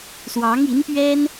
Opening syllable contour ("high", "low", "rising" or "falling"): rising